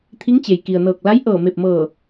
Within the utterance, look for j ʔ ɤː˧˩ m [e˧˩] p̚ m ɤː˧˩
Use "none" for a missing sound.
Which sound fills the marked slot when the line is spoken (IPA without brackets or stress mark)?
e˧˩